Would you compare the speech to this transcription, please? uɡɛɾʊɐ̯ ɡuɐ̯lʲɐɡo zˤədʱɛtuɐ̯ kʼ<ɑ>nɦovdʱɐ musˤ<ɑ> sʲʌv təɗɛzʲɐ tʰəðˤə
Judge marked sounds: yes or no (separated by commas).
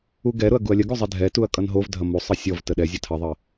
no, no